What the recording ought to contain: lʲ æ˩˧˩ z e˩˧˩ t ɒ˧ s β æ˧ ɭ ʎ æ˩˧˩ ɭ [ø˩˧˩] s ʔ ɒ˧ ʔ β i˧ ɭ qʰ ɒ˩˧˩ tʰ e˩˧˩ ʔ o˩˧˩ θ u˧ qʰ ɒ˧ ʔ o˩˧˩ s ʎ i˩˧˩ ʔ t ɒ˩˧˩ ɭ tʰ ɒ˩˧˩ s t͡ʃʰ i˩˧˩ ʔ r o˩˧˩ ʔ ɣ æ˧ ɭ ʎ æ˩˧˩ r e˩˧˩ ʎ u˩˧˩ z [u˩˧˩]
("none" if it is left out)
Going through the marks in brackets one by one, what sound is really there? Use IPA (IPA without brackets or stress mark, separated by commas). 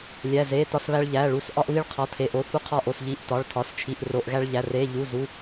u˩˧˩, u˩˧˩